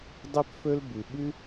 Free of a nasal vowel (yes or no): yes